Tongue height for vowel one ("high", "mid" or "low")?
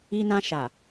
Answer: high